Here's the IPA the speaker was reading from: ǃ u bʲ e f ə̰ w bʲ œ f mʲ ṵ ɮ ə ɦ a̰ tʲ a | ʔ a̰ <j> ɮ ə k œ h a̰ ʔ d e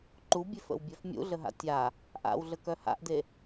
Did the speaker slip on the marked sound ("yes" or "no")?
yes